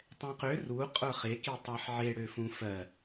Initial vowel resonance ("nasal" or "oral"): nasal